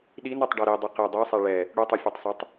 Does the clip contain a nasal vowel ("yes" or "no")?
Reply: no